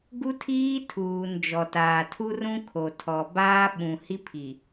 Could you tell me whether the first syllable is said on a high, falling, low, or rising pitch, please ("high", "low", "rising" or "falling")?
high